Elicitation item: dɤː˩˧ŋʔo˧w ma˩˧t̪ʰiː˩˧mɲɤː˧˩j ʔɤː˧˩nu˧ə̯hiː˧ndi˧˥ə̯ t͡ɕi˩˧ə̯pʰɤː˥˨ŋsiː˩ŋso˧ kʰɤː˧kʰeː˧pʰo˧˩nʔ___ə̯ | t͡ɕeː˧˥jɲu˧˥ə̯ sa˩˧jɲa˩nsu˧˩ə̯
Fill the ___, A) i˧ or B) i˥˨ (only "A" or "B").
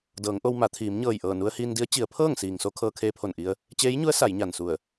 A